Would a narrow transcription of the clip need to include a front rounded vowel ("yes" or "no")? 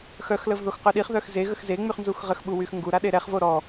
yes